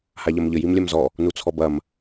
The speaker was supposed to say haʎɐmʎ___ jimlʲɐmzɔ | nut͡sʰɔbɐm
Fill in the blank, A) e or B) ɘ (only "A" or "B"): B